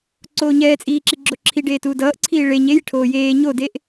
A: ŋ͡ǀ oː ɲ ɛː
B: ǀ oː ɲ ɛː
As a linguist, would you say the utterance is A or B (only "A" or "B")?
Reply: B